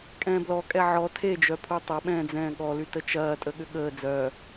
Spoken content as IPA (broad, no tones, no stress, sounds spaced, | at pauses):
kʼ ɛ̃ː b l ɔ kʼ ɛ ʕ ɔ tʰ e d͡ʒ œ pʰ u tˤ ɐ ɓ ɛ̃ː d͡z ɛ̃ː ɠ ɔ l y t ə t͡ʃ ɐː tʼ ə ɠ ʏ ɠ əː d͡z œː